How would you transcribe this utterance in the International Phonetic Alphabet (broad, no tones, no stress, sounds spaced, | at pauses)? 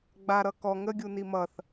ɡ͡b a ɾ ʌ k ɔ ŋ ə ɡʲ u n i m ʌ θ